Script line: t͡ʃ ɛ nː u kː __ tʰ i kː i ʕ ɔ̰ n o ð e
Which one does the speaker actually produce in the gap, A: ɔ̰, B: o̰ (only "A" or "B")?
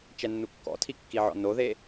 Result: A